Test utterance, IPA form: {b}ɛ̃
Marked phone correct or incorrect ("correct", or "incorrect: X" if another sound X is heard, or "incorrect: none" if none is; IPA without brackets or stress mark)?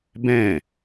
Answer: correct